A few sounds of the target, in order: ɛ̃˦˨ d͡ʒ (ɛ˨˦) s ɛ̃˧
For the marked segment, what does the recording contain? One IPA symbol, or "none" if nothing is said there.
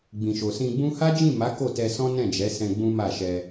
ɛ˨˦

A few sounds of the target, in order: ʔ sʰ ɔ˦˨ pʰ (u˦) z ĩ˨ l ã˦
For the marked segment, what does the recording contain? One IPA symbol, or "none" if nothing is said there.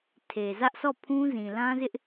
ũ˦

